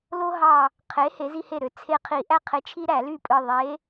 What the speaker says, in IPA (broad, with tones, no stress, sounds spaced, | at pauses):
l o˦ ɦ ɑ˧˩ | qʰ e˨˥ h e˨˥ z i˦ h e˥˩ ɾ ø˦ t͡sʰ e˦ qʰ i˧˩˧ ʔ æ˦ qʰ e˨˥ t͡ʃʰ i˦ ɾ æ˧˩˧ l y˥˩ pʼ ɯ˧˩ ðˤ e˨˥